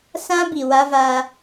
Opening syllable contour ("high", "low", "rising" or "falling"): high